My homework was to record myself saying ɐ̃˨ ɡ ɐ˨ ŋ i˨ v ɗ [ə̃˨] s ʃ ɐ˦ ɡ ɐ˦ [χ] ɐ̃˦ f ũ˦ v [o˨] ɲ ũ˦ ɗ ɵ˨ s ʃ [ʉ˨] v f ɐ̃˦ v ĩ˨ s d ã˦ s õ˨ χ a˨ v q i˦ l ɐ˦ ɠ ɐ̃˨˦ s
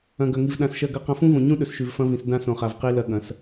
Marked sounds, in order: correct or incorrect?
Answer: incorrect, incorrect, incorrect, correct

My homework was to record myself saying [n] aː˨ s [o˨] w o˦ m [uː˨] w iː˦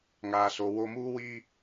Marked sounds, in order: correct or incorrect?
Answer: incorrect, correct, incorrect

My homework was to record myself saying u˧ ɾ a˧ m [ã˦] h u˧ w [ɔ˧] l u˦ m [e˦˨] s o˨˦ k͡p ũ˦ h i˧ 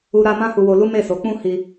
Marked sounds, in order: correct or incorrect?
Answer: correct, incorrect, correct

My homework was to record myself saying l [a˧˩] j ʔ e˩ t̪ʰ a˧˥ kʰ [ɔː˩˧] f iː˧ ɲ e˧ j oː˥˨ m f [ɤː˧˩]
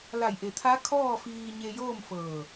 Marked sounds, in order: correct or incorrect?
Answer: correct, incorrect, correct

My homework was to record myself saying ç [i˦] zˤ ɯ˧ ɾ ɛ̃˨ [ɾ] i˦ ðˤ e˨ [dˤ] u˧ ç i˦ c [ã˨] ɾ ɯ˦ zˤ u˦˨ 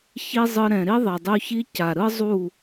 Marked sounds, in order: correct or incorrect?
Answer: correct, correct, correct, incorrect

